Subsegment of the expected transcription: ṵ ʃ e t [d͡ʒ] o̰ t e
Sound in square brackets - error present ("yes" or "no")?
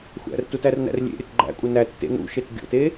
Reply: yes